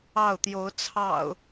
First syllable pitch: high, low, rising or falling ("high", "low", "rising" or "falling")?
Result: falling